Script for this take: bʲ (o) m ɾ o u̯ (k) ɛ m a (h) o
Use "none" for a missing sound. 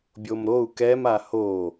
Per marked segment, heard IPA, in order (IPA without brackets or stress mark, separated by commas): o, k, h